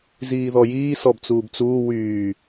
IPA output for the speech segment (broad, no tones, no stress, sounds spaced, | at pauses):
z iː ð ɔ j iː s ɔ b t͡s uː b t͡s uː w yː